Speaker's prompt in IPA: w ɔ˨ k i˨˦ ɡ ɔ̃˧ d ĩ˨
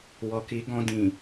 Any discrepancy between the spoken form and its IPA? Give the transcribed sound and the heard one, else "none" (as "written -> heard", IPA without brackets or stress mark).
none